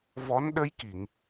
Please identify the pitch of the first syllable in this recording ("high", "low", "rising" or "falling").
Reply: rising